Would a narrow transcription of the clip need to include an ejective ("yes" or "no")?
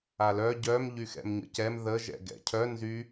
no